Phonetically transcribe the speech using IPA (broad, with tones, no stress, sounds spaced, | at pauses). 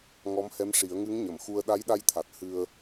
ŋ ɔ˧˥ m h ɛ˧˥ m ʂ i˨˩˦ ə̯ ŋ ɨ˧˥ ŋ ɲ ə˨˩˨ m x u˧ ə̯ ɗ a˧˥ j ɗ a˧ j t̪ʰ a˨˩ t̚ h ɨ˧ ə̯